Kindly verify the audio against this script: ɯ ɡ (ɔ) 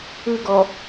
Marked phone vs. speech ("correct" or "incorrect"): correct